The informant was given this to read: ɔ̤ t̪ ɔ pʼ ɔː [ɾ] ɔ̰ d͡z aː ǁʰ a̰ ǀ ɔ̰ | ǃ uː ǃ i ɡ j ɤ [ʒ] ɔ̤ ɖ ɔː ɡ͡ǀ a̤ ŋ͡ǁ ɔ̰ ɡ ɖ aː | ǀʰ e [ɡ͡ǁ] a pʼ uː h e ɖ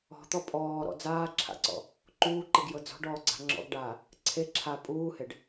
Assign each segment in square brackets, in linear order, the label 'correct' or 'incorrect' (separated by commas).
correct, incorrect, incorrect